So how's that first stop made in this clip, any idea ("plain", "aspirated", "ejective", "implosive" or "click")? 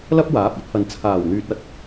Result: plain